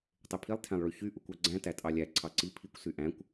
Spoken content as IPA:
tˤ e pʰ i lˠ tʰ æ̃ lˠ ɭ y ç y ʔ u kʷ ɑ ɡ͡ǀ æ̃ t æ tʼ ɑ lʲ æ ǀʰ ɑ ǀ i pʰ i kʷ s y ʔ æ̃ kʷ

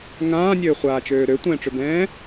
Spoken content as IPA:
ŋ ãː nʲ øː χʷ aː t͡ʃ øː ɾ ø tʷ ɛ̃ː ʈ͡ʂ ø b ɛ̃ː

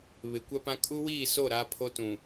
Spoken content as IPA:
β ɪ˨˦ kʷ a˦ p ã˦ kʼ u˦ w iː˦˨ s o˦˨ ɾ a˦ pʰ o˦ t ũ˨

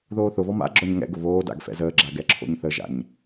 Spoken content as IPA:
ð oː θ ʊ β ɔ m a̰ ɡ͡ǁ ɔ ɲ ŋ ɛ̰ ɡ ʊ β oː d a̰ ɡ f ɛ̰ z əː ɡ͡ǁ a ɡ ɛ ǁʰ o̰ ɲ θ ə ʒ a̰ ɲ

